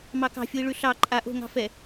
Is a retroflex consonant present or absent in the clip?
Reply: present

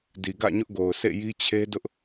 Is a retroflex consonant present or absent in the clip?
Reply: absent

